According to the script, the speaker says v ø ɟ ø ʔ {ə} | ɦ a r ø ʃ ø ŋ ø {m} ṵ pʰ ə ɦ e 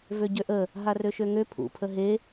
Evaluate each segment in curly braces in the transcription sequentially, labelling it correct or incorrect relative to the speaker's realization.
correct, incorrect: pʰ

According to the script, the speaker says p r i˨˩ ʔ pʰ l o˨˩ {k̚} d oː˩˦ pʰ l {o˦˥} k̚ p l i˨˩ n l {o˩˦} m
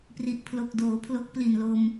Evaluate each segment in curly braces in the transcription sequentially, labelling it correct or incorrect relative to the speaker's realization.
correct, correct, incorrect: o˧

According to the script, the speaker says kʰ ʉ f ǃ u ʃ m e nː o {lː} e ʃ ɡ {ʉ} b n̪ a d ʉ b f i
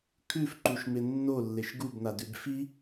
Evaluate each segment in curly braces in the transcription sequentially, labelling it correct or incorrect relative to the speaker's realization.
correct, incorrect: u

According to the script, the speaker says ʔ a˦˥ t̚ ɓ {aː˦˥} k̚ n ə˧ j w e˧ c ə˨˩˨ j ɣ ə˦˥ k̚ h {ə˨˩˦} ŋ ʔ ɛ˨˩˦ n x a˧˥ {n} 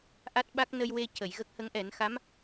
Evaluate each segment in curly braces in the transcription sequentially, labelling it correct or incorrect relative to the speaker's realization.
incorrect: a˦˥, incorrect: ə˧˥, incorrect: m

